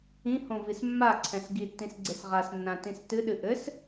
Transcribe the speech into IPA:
ĩ h õ v i s mː a ǀʰ ɛ̃ s ɡ i tː ĩ s ɡ͡ǀ e s ʁ a s nː ã t ĩ s t ɨ ɗ ɨ ʔ ɘ s

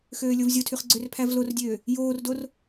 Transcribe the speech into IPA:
x øː lʲ o v zʲ o tʰ y χ ɡ͡ǀ ø r pʰ æ v l o r dʲ øː | j oː r d o r

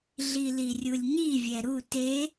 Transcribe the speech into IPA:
ɮ i l i rʲ u lʲ ɲ i vʲ ɛ ɾ u t e

